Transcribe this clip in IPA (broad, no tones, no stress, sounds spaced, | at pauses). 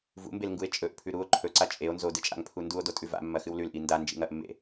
v ṵ m b e l ŋ ɡ u e̯ t͡ʃʼ ɵ ʔ pʰ ʉ ɾ u o̯ ǃʰ ɵ ǀ a t͡ʃʼ e o̯ n z o d ɨ t͡ʃʼ a̰ ŋ pʰ u n d u o̯ d o tʼ ʉ v a̰ mː ɐ x ɨ w l ʉ l ʔ i n d a n d͡ʒ ḭ ŋ ɐ ʔ mː ḛ